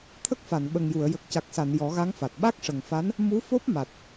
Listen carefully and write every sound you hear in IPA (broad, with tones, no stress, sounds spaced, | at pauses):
t̪ʰ ə˦˥ k̚ f a˨˩˨ n ɓ ə˨˩ ŋ j u˨˩˨ ə̯ j ə˨˩ k̚ c a˨˩ k̚ s a˨˩˨ n j ɔ˨˩˦ ɣ a˧˥ ŋ f a˨˩ t̚ ɓ a˦˥ k̚ ʂ ə˨˩ ŋ f a˧˥ n | m u˧˥ f o˦˥ p̚ m a˨˩ t̚